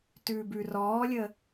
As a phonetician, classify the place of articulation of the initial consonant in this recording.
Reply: alveolar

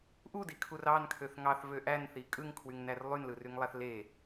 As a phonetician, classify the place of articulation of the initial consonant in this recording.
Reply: glottal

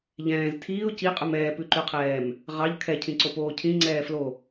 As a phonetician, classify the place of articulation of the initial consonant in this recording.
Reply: palatal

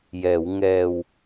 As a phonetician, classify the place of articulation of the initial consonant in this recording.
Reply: palatal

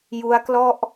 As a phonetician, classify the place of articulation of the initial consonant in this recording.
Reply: palatal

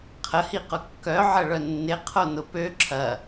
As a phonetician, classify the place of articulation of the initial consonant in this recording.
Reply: uvular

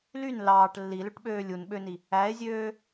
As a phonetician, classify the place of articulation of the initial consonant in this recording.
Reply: alveolar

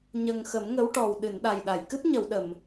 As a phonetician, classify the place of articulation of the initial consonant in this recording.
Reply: palatal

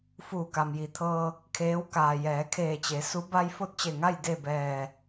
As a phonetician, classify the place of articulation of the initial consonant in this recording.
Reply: labial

